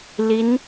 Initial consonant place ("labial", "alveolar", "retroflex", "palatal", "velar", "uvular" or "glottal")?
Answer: alveolar